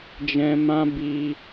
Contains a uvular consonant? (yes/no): no